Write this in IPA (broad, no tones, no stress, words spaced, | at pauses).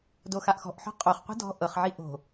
doxaʔxɔ̤ʔħɔ̤ qʼoχqʷi̤ dɔ̤ ʔɤχʕi ʔo̤